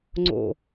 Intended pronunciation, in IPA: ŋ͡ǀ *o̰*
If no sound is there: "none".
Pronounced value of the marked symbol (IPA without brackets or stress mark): o̰